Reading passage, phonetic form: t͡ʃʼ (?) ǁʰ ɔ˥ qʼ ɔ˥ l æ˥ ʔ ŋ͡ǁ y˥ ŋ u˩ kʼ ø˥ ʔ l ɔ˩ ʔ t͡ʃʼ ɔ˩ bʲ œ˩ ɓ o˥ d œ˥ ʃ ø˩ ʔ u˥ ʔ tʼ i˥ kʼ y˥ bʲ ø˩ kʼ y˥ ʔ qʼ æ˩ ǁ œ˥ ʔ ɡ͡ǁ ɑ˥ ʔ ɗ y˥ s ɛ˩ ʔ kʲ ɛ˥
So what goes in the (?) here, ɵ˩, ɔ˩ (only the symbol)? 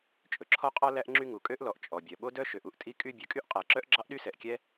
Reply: ɵ˩